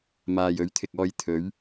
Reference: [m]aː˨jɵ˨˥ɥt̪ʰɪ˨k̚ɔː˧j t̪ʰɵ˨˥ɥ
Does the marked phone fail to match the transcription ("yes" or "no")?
no